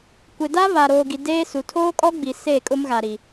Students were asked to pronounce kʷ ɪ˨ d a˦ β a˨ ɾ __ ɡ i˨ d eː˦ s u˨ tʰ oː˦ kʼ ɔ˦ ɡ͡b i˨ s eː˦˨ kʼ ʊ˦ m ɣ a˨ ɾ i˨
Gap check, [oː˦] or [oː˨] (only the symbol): oː˨